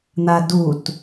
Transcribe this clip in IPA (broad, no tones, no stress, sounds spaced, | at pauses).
n̪ a d u t